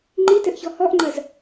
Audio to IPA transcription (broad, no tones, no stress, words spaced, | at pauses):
ŋ͡ǃitɘʔçɔ hɔʔŋ͡ǃɐz